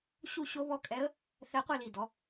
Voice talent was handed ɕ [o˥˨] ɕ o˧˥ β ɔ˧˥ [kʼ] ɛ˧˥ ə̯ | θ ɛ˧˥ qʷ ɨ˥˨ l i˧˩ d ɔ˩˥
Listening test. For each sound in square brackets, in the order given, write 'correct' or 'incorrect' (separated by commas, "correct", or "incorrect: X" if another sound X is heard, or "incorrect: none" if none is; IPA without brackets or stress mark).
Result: incorrect: u˥˨, correct